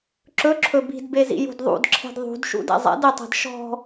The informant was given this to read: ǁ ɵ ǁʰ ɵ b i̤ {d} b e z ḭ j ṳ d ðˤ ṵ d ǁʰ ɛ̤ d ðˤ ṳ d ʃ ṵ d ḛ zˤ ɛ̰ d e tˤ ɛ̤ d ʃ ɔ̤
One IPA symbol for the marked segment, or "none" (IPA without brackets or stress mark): d